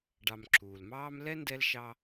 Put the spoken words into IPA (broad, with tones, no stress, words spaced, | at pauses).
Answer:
ɖɑ˨mǁʰuː˩lmɑː˥m lɛ˦ ndɛ˦lʃɑ˦